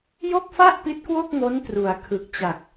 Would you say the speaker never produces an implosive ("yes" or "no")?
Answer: yes